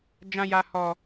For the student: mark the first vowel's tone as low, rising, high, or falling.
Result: high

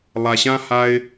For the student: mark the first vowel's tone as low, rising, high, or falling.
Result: low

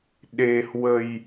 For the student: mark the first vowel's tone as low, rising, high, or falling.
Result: low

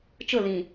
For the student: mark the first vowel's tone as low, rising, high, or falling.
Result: falling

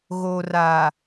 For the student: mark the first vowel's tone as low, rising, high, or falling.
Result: low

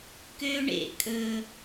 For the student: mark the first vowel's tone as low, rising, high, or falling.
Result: high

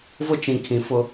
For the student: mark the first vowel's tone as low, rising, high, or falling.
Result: high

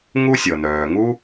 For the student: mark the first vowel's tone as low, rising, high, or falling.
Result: high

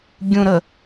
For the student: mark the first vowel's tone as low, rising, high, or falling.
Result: low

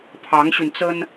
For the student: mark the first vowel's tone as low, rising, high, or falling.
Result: rising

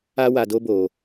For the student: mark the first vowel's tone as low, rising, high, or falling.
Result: high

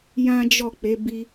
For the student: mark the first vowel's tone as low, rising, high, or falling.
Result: high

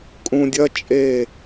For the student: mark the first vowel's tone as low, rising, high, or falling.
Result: low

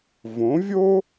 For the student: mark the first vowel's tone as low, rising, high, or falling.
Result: rising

